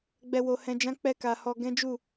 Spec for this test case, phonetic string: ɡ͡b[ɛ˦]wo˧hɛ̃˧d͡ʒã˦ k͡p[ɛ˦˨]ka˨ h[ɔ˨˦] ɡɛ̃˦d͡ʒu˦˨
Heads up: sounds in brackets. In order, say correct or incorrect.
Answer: incorrect: ɛ˧, incorrect: ɛ˧, incorrect: ɔ˧

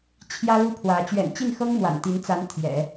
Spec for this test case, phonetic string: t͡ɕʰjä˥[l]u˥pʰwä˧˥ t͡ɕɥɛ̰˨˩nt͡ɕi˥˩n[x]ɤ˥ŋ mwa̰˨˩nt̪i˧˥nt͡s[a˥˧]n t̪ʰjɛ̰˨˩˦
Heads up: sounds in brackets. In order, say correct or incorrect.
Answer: correct, correct, incorrect: a˧˥

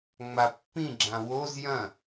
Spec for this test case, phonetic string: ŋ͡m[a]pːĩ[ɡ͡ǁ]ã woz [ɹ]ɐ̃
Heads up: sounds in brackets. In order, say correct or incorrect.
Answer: correct, correct, incorrect: j

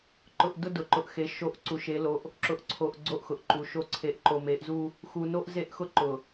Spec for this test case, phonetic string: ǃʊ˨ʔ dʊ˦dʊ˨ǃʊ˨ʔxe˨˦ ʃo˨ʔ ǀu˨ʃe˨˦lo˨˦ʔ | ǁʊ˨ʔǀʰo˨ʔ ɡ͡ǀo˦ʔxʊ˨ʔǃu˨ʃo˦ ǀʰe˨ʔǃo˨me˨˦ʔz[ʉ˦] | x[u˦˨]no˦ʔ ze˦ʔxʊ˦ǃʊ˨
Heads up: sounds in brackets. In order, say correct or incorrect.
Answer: incorrect: u˦, incorrect: u˨

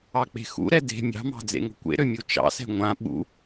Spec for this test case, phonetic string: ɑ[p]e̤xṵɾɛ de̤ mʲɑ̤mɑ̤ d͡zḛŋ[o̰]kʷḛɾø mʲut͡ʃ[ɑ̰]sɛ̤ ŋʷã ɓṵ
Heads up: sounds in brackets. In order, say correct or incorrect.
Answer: incorrect: k͡p, incorrect: o̤, correct

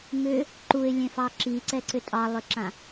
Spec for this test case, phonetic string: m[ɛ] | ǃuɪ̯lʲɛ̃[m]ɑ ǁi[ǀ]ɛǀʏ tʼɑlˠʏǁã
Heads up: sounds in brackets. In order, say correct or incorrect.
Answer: incorrect: ʏ, incorrect: f, correct

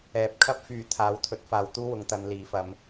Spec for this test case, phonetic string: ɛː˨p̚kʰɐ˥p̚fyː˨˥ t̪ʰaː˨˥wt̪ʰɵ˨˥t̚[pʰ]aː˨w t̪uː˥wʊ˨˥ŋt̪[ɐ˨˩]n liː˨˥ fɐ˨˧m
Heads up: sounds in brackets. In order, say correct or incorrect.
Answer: incorrect: f, incorrect: ɐ˨˧

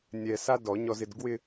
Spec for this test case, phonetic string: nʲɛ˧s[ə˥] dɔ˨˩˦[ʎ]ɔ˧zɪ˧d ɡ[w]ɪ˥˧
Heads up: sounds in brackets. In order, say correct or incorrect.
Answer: incorrect: a˥, incorrect: ɲ, correct

